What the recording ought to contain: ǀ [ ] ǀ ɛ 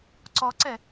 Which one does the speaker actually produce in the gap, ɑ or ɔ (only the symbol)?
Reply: ɔ